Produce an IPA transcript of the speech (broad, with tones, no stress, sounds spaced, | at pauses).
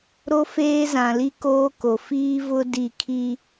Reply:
ɾ o˦ f eː˦ z ã˨ l i˦ k oː˦ k o˨ f iː˦ v ʊ˦ d i˦˨ kʰ i˦